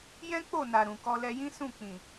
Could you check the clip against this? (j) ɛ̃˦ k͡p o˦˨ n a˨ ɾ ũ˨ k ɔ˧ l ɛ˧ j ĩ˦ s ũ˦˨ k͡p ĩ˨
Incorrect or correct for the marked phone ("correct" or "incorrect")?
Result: correct